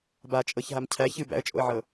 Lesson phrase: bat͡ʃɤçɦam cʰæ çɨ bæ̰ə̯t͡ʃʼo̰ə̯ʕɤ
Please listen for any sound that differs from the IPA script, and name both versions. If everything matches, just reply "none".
t͡ʃ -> t͡ʃʼ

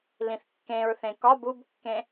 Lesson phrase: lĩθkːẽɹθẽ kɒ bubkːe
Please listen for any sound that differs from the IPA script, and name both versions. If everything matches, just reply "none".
e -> ẽ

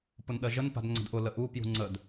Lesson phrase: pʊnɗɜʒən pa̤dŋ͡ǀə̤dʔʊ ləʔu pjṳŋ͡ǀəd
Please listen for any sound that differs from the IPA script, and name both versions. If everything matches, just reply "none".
none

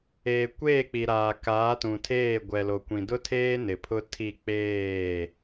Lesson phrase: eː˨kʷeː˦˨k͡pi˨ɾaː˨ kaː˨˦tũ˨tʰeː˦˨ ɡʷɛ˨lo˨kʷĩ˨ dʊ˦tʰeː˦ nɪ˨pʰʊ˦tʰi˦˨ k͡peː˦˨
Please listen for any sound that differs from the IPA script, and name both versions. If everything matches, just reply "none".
none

